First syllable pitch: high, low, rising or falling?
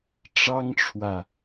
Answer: high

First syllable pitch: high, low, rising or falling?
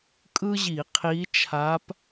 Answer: high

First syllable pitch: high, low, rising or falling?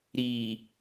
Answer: low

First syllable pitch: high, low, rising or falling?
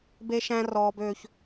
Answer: high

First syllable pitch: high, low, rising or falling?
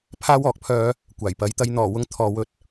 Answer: high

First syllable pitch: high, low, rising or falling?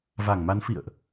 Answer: low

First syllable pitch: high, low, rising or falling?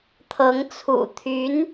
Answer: rising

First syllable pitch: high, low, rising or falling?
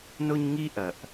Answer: high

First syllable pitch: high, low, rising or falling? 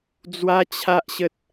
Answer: high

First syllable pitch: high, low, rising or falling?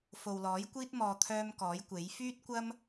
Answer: low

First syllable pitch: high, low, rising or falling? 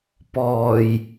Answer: low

